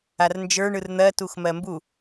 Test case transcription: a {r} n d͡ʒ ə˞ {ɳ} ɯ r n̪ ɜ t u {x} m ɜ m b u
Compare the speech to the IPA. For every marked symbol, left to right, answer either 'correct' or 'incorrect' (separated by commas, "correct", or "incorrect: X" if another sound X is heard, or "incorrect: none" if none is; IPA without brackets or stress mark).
correct, correct, correct